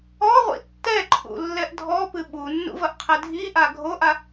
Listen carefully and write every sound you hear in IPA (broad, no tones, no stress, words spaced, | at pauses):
ɔʁʷḭ tːɛǃʰṵ lːɛʔdʱɔpɨ ɓunːṵ vɐʔqʰɛdʱiʔa ɡʱoʔa